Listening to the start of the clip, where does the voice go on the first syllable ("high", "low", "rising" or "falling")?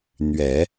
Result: low